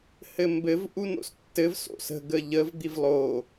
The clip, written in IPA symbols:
h ɘ m b ɘ v ʔ u n o̰ s tː ɘ v s o̰ s ə̤ ɡ ə ʎ ə v d̪ i v lˠ o

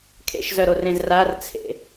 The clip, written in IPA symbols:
kʰ ḛ ʃ z œ ɾ o r ẽ z r a r t͡sʰ ḛ

